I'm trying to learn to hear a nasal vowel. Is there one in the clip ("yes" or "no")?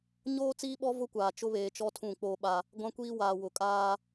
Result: yes